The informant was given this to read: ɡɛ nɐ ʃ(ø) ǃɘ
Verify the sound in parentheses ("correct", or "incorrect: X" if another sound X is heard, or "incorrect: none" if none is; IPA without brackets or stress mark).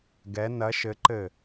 incorrect: ɘ